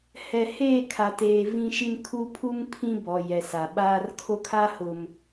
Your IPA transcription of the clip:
hɛ˨ heː˦˨kʰa˨teː˨ vĩ˦ʃi˦n kʰu˦pʰu˦ŋpʰĩ˦ bɔ˨ jɛ˨sa˨ɓaː˦r kʰo˦kʰa˦ hʊ˨m

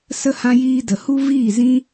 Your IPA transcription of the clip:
sə˧hã˧jiː˧də˨ hu˦viː˦˨zĩ˦

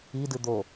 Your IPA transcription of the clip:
idɨ d̪o

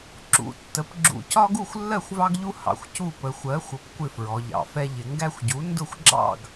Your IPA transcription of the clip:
ǁṵ˩˧ tːə˩˥p ɡ͡ǁṵ˨˩cɒ˦ɡu˥˩xʷ lːɜ˥˩xʷvɑ˦ɡʎu˦ hɑ̰˩˧xʷcu˥˩ pə˩˧xʷɜ˩˥ xʷə˩˥p kʷɪ˥˩fɹɔ˩˧ʎɑ̰˨˩fɛ˦ ʎɪ˩˧ŋɡæ˦xʷɟu˩˥ ndʊ˥˩xʷɡ͡ǁɑ̰˥˩ɡ

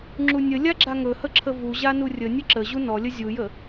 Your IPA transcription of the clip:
ŋ͡ǁunʲəlʲa ɡ͡ǁaŋɵhə ǁʰəvuʑa nurʲənʲə ǁə ʑunɔlʲə zʲujə

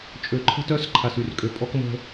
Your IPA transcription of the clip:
t͡ʃʼø˨ǃʰə̤˦tœ˦s ǃʰa˨sy˨rkʼø˨ pʼɔ˦kmə̤˦

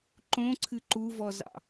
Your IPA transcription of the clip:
ǃõǀʰɨ ǃuvɔzɑ̰

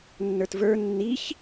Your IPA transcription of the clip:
nːə˞tvə˞ nːiç

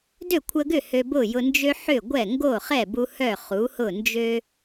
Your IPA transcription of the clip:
dø˥˩kʷʰə˧ɡʏ˥˩ hø˧bʊ˥˩jʊ˧ nd͡ʒø˥ ħʏ˥˩ɡʷɛ˥˩ ŋɡo˥˩χɛ˥˩bu˧ hœ˥˩χu˩˥hʊ˥˩nd͡ʒø˥

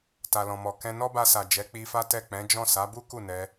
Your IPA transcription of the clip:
ta˨lɔ̃˨mɔ˨ kɛ̃˧nɔ˦ba˧sa˨ d͡ʒɛ˨˦k͡pi˧fa˦ tɛ˦˨ k͡pɛ̃˨˦d͡ʒɔ̃˦˨ sa˨˦bu˦ ku˦˨nɛ˧

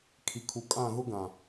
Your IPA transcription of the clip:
kʰi˨kʰu˨ kʼã˦˨ɣʊ˦ ɡã˨

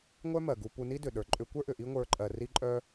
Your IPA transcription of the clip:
ŋʷœ˦mɜ˨ɡu˧ pu˧ni˦dʏ˨ɗə˞˨ ǃʼʏ˧kʷə˞˦ʔʏ˨ ʔi˦ŋʷə˞˧ǃʼɜ˨ ri˧ǃʼœ˧

